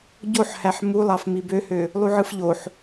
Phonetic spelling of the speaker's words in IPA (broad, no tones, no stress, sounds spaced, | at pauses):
ɟ o ħ h æ ħ m u lˠ ɑ f m i b ø h ø | lˠ u ʕ ɯ f ʎ o ħ